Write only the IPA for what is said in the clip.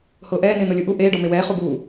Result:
hʊːʔɛːnɪː nolʲuʔu ʔeːɖɔ mewɛː χubuː

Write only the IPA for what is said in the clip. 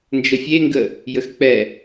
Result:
nd͡ʒəfʲeŋɡə | jəxk͡pɛ

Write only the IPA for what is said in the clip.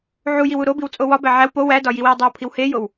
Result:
ʕujiwu ɾobiwt͡sʼo wɒbæ ʕæw po wædɒ jiwiwdˤæwpʰiw hejow

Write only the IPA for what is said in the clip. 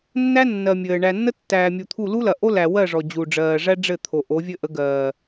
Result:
nːæ˦ nːɜ˨mʲɘː˨ ɳæ˨nːə˦ tːæː˨mʲu˨t̪ʰu˦˨ lu˦lɐ˨ʔo˦ læ˨wɜ˦˨ʐɔ˨ d͡ʑu˨ɖ͡ʐɜː˨ ʐæ˦ɖ͡ʐɘ˦˨t̪ʰo˨ ʔo˨˦vʲɘ˦ʔə˨˦ɡɜː˨

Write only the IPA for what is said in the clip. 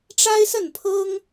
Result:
ʈ͡ʂa˥ɪ̯sə˥˩n pʰɤ˥ŋ

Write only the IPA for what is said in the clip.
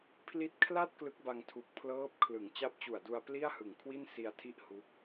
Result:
pʰli˦˥t̚kʰla˥˩t̚ klɯ˦˥k̚ba˧ŋtʰu˨˩k̚ pʰlɤː˦˥p̚kʰlɯ˩˦ŋ t͡ɕa˦˥p̚t͡ɕu˨˩a̯du˧a̯ pli˥˩a̯hɯ˨˩ŋ kʰwi˥˩nsi˧a̯tʰi˥˩ʔ hu˦˥k̚

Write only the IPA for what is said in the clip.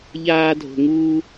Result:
ʎaː˥dʱo̤˧ŋuː˥

